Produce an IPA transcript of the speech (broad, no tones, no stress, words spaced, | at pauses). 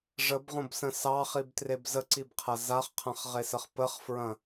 ʐəbʁõbsə̃ sɑχibtreb zəǀibqʰɐ zaχqʰɐ̃χʁesəχ pəχfɹɐ̃